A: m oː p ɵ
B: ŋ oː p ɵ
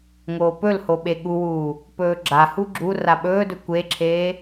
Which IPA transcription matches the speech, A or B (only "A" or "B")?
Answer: B